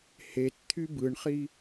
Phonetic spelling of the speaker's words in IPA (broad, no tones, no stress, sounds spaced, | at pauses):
h e t t̪ʰ y b ɯ ɳ χ i